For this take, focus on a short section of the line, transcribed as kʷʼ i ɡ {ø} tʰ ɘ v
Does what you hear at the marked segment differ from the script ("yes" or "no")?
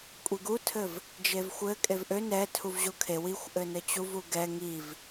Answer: yes